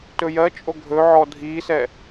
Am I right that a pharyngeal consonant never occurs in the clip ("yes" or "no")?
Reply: no